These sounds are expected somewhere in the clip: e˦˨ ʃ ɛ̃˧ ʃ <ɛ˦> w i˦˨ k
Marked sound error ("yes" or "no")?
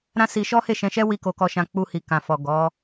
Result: no